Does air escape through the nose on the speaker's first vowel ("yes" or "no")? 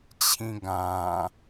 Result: yes